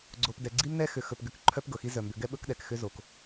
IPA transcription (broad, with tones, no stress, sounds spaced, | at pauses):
ɡ͡ǀ o˨ p d ɛ˨ ɡ͡ǀ i˦ m n ɛ˦ x ʏ˨ x ɵ˨ p ɡ ʏ˨ k ǃʰ œ˦ p ɡ ɤ˨ x i˦ z œ˨ m b ʏ˨˦ ɡ ɛ˦ ɓ ɵ˦ k ɗ ɛ˨ k x ʏ˦ z o˨ k